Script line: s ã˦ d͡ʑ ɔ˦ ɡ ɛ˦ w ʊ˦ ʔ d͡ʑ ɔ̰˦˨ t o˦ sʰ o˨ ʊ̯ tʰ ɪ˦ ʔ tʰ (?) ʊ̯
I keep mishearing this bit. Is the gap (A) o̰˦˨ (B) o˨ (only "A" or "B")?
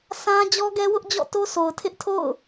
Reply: A